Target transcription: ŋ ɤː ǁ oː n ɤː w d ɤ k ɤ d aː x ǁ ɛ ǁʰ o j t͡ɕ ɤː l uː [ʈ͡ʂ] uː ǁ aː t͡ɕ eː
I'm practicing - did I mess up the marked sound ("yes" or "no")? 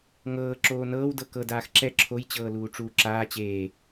no